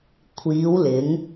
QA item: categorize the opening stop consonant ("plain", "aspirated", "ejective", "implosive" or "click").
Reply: aspirated